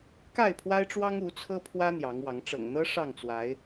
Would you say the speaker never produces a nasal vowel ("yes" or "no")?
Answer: yes